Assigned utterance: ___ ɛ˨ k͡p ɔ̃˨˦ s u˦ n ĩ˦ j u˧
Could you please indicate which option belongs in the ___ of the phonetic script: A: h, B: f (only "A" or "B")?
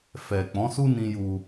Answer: B